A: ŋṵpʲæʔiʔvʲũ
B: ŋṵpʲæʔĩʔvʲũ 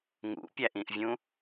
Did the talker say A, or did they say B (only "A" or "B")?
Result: B